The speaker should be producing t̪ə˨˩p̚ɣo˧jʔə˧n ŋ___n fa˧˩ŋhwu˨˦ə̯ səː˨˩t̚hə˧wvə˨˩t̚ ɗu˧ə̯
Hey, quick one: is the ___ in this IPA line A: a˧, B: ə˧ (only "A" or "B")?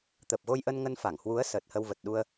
B